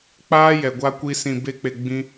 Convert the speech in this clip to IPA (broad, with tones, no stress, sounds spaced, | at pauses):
k͡p aː˦ j ɛ˨ ɡʷ a˧ kʷ i˧ s ĩ˨ b e˧ k͡p e˨ ɡ͡b ĩ˧